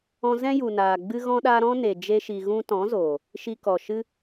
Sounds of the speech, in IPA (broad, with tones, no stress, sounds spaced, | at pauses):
ɔ̃˧ z ɛ̃˦ j u˨ n aː˨ ɡ͡b ɨ˦ ɣ ɔ̃˦ ɗ aː˦ ɾ ɔ̃˦ n e˨ d͡ʒ e˦ ʃ i˧ ɣ ũ˦ t ɔ̃˨˦ z oː˨ | ʃ i˧ k ɔ˨ ʃ ɨ˦